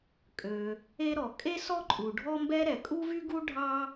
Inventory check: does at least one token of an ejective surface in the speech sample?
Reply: yes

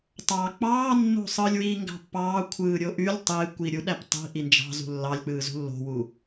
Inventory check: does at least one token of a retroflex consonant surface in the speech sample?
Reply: no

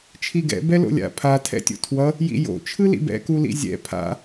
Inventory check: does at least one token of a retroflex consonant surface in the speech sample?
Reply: no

